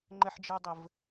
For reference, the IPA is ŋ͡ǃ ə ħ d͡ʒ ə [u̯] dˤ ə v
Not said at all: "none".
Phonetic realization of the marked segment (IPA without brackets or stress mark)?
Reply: u̯